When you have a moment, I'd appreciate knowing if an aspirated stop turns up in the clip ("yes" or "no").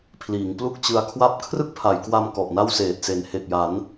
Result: yes